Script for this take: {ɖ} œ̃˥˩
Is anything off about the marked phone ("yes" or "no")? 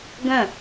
yes